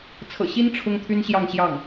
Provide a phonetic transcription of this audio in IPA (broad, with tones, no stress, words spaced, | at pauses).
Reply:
t͡sʰɤ̰˨˩ɕi˥n ʈ͡ʂʰʊ˥ŋt̪ʰy˥nɕjɑ˥˧ŋɕjɑ˥˩ŋ